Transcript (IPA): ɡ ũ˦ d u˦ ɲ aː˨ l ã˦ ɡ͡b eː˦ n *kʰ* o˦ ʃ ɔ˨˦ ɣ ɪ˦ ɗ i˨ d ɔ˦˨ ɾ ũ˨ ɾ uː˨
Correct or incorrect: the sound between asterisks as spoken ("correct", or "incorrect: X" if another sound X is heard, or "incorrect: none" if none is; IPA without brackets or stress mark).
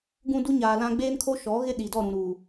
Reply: correct